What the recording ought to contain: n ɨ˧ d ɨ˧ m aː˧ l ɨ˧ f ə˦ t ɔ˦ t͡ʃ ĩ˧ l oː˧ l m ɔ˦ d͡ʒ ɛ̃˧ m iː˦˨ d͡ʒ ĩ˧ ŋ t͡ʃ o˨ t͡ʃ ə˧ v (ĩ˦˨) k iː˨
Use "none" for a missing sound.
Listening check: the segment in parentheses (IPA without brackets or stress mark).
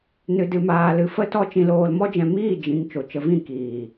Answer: ĩ˦˨